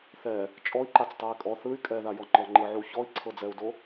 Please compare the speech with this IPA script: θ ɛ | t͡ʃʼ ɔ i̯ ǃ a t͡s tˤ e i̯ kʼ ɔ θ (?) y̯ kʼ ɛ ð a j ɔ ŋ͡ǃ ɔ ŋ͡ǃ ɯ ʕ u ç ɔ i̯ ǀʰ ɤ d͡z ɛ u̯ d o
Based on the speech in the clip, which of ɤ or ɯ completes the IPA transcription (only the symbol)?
ɯ